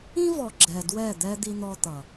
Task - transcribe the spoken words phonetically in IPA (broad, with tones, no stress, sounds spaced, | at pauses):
ĩ˦ v ɔ˨ ɡ͡ǁ ɛ˨ d w ɛ˦˨ d̪ ɛ˦ d̪ i˦ n̪ ɔ˦ t̪ ʌ˨